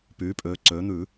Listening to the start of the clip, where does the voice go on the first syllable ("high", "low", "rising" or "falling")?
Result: rising